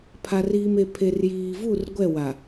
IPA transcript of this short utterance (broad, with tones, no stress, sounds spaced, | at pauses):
pʰ a˨ r iː˨ m e˨ pʰ e˨ r j iː˨ v u˦˨ r ɡʷ ɛ˦˨ w a˨